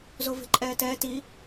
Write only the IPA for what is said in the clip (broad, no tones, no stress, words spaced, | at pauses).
zove̤ǃʼɛːtɛː ti